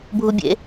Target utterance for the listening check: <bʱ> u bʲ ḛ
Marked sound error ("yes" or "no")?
no